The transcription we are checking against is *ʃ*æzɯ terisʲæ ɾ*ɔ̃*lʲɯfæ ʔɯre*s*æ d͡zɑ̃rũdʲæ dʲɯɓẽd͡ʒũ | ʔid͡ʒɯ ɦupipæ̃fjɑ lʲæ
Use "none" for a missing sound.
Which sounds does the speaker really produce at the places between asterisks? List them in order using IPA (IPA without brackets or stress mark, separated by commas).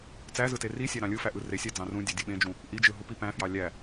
t͡s, ɑ̃, sʲ